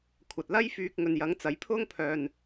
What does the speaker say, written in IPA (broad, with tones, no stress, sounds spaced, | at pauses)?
kʷʰ ɐ˨ t̚ l ɐ˧ j f yː˧ k̚ ŋ ɵ˨ n j ɐ˨˥ ŋ t͡s ɐ˨˥ j pʰ ʊ˥ ŋ pʰ œː˨ n